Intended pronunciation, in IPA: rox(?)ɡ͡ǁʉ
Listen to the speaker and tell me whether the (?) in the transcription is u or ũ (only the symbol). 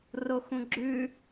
ũ